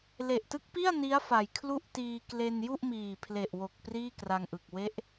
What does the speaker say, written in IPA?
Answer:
l e˨˩ ʔ t ɯ˦˥ k̚ p i˥˩ a̯ n i˦˥ a̯ f a˨˩ j kʰ l u˥˩ ʔ t iː˧ k l e˧ n j u˥˩ ʔ m iː˨˩ pʰ l e˨˩ ʔ w o˨˩ k̚ p r iː˥˩ k r a˧ ŋ ʔ ɯ˨˩ k̚ w e˦˥ ʔ

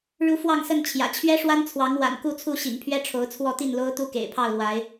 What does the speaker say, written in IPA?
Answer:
ɻ u˨˦ f w ɑ˥˨ ŋ s ə˥˨ n t͡ɕʰ j ä̰˨˩ t͡ɕʰ ɥ ɛ˦ ʂ w a˦ n t͡sʰ w ɑ˨˦ ŋ w a̰˨˩ n k u˥˨ t͡sʰ u˥˨ ɕ ḭ˨˩ ŋ pʰ ɥ ɛ˦ ʈ͡ʂʰ o˨˦ ʊ̯ t͡sʰ w ɔ˥˨ t̪ i˥˨ n l o˦ ʊ̯ t̪ u˦ k ḛ˨˩ ɪ̯ pʰ ɑ˥˨ ʊ̯ l w a˨˦ ɪ̯

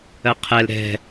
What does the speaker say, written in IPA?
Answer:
ɜ qʰ ɛ l ɾ ɛ̤

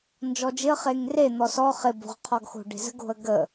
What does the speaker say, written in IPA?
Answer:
n d͡ʒ ɔ d͡ʒ ɪ ə̯ χ e ŋ r e n̪ ɔ s ɔ χ ɪ b o̤ ʁ qʰ ɔ ɡ x o̤ ɖ e̤ z ə̤ ɡ o̤ ə̯ ɡ ə

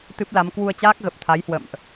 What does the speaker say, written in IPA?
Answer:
t̪ ɨ˦˥ p̚ l a˨˦ m k w u˧ ə̯ t͡ɕ aː˦˥ k̚ ɣ ə˨˩ p̚ t̪ʰ a˨˦ j h w ə̰˧˨ m ʔ

